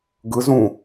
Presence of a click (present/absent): absent